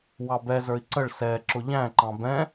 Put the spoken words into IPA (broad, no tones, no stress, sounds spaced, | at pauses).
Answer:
w ɑ b ɛ z ə˞ i̯ ǀ ə ɭ s ɛ ǁ ʊ ʎ æ̃ ǃ ɑ̃ b ɛ̃